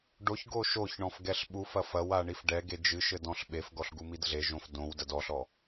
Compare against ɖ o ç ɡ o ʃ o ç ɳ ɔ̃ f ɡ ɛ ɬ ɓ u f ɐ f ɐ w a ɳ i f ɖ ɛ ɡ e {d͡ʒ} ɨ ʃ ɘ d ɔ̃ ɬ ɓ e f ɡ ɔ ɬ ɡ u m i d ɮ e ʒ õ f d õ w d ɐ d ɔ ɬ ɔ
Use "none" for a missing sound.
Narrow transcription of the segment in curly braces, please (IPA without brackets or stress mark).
d͡ʒ